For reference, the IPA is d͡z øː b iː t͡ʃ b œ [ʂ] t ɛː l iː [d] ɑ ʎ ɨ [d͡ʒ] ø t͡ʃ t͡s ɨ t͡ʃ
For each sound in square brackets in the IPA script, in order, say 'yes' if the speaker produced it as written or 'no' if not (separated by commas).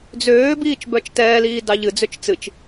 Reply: no, yes, no